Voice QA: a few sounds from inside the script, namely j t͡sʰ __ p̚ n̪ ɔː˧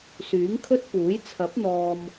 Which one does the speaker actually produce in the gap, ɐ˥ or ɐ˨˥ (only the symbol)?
ɐ˨˥